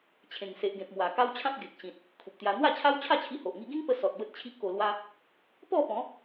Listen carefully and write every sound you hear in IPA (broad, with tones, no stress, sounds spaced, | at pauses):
t͡ɕʰ ẽ˨˩ ŋ s e˨ ʔ ɡ ẽ˨ p̚ m w a˨˩ k a˦ w t͡ɕʰ ã˦ p̚ ɡ e˨ k̚ ɕ ĩ˨ t̚ | kʰ u˨ p̚ t̪ j a˧ n̪ w a˥˧ t͡ɕʰ a˦ w t͡ɕʰ a˥˧ t͡ɕʰ i˧ h o˨ ʔ ŋ i˧ ɡ ĩ˦ ŋ p ə˧ s ɔ˨ t̚ b ə˦ t̚ t͡ɕʰ i˦ ʔ k o˧ l w a˦ | p ɔ˥˧ p ɔ̃˨˦